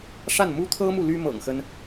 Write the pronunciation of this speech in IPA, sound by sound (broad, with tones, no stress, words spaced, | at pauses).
ʂa˥˩n mu˥t̪ʰɤ˥mu˨ ly˥mɤ̰˨˩ŋxə˦n